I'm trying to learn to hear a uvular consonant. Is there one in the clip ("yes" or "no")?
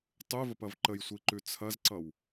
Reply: no